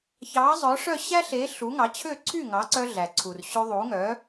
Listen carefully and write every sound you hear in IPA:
çɑ˩˥zˤœ˩˥ʂœ˥˩ ɕæ˥ɬe˩˥ ɬu˩˥ŋɑ˩˥t͡ɕʰø˥˩ ǀʰy˥˩ŋɑ˩˥ǀœ˧ ɮæ˩ ǀʰu˩rɕʉ˧ðˤu˩˥ŋœ˩˥

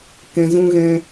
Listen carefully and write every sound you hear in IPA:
kɛ̃˨zũ˧ɣɛ̃˧

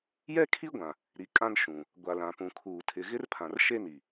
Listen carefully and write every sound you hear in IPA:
jɛ˦kʰi˦ɡʷã˨ | ɾi˨kʼã˦n ʃũ˨ | ɡʷa˨lã˨pũ˨kʰuː˨ tʰɪ˨ ɣɪ˦rpʰã˨r ʃe˦ni˨

